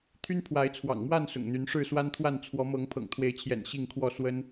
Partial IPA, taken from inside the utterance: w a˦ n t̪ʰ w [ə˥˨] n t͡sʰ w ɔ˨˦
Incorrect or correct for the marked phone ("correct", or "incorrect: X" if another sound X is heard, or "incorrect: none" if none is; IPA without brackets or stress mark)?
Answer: incorrect: a˥˨